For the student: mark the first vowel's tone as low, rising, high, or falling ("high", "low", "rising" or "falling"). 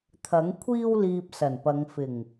rising